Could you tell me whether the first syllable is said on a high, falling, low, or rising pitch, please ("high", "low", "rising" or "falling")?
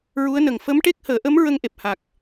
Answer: rising